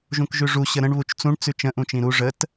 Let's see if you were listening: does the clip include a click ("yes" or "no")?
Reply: no